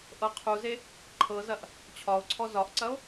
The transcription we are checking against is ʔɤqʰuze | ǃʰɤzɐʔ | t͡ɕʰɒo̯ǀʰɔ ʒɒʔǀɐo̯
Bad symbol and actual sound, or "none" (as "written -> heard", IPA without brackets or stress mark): ʒ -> z